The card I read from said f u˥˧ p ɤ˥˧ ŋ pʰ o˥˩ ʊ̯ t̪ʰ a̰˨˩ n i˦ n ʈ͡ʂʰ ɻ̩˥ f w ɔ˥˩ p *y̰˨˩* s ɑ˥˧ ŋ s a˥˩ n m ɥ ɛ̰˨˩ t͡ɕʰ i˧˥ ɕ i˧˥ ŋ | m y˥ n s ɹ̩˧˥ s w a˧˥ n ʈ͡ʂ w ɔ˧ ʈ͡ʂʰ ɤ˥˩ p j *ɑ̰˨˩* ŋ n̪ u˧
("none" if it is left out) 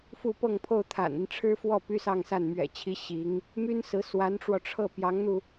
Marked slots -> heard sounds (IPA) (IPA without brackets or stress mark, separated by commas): y˥, ɑ˧˥